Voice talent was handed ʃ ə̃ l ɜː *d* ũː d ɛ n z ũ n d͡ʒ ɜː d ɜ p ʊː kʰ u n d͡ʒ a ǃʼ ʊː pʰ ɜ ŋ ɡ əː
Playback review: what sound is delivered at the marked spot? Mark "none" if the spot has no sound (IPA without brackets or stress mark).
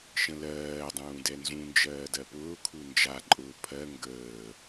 dˤ